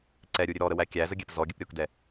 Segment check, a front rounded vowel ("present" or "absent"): absent